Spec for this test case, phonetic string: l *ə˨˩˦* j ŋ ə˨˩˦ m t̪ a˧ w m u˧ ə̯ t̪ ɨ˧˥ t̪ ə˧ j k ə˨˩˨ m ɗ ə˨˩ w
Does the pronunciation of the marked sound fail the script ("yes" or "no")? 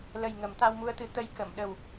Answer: yes